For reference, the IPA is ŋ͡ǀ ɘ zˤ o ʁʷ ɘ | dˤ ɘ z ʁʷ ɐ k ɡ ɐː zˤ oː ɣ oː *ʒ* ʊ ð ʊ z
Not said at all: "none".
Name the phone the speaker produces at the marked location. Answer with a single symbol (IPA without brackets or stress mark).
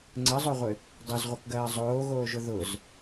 ʒ